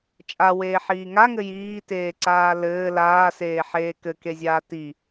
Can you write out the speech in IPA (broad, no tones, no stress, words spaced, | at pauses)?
t͡ʃʼa weːħiːŋaŋɘ jiːteːǀaː lɘː laːseːħeː kɘkezʲaː ti